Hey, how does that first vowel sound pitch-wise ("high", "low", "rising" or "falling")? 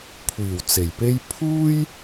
low